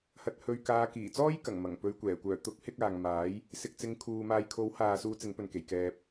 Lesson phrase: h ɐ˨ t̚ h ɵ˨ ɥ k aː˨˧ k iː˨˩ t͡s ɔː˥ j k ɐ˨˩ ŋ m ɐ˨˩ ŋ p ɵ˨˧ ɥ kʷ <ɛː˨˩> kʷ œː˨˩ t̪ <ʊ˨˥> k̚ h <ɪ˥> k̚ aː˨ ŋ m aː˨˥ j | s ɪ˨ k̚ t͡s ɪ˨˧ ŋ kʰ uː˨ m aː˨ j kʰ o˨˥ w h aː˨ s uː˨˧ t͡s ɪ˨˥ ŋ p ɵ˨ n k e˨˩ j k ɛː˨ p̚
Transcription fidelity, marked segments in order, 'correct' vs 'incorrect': correct, correct, incorrect: ɪ˧

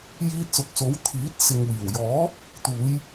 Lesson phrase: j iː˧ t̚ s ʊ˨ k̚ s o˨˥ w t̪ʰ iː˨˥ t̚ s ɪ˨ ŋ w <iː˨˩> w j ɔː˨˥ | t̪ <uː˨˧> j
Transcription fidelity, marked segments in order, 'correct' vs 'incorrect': correct, correct

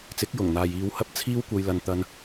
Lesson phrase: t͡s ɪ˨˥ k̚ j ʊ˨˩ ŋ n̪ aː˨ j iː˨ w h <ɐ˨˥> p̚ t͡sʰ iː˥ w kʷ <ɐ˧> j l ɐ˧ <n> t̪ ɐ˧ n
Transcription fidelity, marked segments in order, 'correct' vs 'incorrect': incorrect: ɐ˧, correct, correct

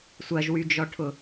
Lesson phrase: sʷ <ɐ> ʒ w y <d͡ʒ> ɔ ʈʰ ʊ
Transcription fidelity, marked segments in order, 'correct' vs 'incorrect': correct, correct

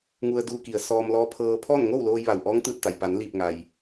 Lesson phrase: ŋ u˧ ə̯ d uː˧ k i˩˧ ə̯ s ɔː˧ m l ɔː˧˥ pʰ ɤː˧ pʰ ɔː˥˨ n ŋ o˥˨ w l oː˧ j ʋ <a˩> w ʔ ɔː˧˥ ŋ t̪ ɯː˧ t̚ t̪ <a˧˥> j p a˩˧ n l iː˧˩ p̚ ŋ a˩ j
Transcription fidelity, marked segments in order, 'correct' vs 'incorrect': correct, incorrect: a˩

